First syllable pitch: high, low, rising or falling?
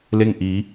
falling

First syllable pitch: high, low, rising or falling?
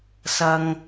low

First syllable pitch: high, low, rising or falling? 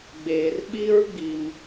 low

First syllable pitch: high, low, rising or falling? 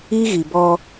high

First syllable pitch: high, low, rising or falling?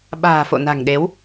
low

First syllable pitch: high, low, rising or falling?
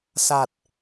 low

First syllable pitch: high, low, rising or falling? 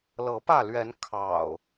rising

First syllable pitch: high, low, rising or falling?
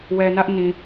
low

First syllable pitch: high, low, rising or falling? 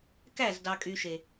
falling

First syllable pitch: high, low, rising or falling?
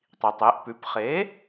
low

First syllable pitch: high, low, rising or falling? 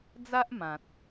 high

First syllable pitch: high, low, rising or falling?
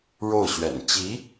falling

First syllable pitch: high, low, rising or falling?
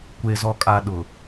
low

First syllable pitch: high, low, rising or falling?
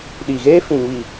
low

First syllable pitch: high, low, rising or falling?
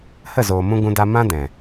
falling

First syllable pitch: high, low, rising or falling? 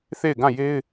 falling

